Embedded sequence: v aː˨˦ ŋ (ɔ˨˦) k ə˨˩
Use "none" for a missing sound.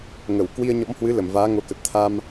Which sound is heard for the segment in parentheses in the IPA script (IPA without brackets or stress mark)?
o˨˦